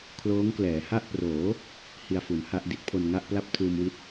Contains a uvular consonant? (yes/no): no